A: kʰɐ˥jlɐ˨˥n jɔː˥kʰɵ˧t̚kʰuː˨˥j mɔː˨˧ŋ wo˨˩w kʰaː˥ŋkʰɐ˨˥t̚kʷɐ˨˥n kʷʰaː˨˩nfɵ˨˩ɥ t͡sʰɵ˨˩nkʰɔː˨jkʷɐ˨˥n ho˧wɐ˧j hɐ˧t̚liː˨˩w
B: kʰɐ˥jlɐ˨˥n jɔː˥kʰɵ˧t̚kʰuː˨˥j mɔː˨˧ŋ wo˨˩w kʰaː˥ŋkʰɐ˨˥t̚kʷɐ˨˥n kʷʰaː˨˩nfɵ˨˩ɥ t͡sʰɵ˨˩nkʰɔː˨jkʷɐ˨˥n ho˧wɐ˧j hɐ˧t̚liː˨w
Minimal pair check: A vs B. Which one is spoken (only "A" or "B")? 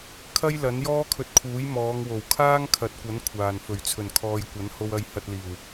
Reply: A